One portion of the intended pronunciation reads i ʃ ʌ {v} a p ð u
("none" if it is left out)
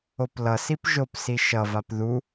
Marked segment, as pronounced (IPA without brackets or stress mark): v